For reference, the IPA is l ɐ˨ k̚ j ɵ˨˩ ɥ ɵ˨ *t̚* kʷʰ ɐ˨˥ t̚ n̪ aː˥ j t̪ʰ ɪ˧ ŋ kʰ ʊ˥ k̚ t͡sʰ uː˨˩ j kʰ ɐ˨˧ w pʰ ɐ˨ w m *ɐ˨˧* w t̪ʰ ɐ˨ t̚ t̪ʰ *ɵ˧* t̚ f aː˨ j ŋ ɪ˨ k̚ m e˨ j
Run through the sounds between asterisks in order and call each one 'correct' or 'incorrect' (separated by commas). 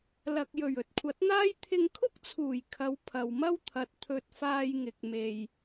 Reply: correct, incorrect, incorrect